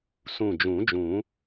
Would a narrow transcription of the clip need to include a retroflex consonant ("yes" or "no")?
no